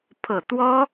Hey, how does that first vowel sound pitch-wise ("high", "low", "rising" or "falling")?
low